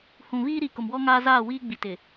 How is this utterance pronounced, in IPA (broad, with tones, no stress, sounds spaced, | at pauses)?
h ũ˨ β iː˦ ɾ i˨ k ʊ˨ m w ɔ˦ ŋ aː˦ z aː˦˨ w iː˦ ɡ͡b i˨ t ɪ˨